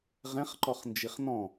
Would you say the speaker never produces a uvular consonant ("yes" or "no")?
no